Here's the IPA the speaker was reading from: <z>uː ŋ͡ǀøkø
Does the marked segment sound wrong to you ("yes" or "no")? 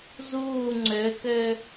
no